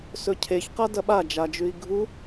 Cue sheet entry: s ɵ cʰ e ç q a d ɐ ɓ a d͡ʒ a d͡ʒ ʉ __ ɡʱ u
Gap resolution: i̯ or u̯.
i̯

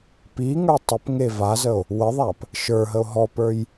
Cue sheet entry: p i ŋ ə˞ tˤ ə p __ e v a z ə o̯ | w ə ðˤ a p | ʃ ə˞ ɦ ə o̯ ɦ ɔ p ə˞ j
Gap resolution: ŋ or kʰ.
ŋ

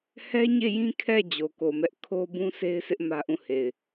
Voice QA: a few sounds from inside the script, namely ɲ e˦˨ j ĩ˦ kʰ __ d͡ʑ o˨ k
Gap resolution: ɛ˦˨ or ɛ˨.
ɛ˦˨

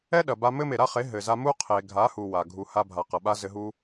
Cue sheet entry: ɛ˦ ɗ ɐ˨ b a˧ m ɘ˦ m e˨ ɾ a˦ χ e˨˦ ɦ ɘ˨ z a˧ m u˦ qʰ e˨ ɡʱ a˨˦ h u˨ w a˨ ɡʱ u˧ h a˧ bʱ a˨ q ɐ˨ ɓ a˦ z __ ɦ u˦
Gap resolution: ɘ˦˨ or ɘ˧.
ɘ˧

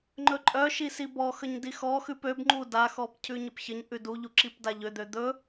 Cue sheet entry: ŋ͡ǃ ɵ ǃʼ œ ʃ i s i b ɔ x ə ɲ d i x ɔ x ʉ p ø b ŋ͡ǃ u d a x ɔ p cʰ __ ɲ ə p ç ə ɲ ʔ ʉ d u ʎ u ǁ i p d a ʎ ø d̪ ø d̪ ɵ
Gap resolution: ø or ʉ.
ʉ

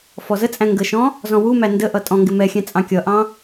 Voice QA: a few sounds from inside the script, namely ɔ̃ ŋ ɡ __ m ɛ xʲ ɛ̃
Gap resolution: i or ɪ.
ɪ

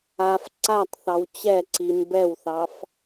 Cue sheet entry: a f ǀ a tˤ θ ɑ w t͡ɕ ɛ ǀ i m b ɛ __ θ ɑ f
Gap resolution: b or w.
w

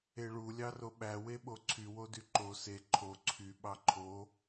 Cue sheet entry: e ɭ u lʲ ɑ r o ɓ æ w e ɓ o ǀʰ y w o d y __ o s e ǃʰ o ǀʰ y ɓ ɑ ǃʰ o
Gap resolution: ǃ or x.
ǃ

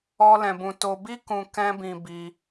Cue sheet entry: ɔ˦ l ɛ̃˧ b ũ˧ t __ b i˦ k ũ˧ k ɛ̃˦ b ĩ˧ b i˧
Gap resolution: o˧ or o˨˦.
o˧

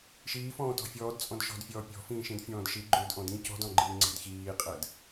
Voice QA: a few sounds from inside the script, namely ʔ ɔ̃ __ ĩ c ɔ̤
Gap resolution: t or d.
d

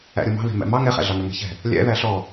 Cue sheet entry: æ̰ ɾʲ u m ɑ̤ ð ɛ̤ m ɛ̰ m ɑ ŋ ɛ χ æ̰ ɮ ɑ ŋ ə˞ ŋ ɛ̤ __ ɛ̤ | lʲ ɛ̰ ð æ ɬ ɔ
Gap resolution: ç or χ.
ç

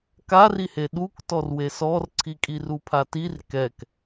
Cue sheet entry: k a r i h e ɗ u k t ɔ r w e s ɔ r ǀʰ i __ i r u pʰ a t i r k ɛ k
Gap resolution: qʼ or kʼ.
kʼ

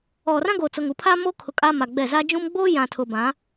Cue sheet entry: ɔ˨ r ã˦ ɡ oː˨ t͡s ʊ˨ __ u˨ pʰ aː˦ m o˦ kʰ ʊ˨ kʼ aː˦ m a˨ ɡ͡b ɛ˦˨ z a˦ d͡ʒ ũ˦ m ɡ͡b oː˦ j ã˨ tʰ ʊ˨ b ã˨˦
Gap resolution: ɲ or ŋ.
ŋ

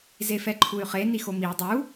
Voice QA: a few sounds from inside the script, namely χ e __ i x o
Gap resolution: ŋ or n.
n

